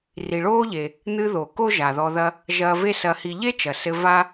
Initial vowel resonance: oral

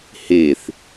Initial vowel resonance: oral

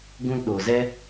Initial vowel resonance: nasal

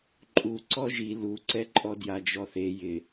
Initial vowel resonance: oral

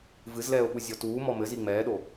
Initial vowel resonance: oral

